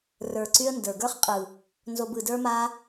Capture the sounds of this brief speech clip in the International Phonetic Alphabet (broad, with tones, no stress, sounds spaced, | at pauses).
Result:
r ə˞˨ ǀ y˦ ə̯ n d ə˞˨ ɡ ə˞˦ χ qʼ ɯ˨ | n z o˧ b ɯ˨ d ə˞˦ m a˦